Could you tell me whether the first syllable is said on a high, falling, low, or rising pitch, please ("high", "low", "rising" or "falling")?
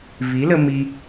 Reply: rising